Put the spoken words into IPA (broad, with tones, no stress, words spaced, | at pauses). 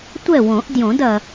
tʷɛ˥˨wõ˨˩˦ʔ djõ˨˩˦dɐ˩